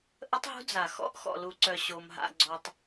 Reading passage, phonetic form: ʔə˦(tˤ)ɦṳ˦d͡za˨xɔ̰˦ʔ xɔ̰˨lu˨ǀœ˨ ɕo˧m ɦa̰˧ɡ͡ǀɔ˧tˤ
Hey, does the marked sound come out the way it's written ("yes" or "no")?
yes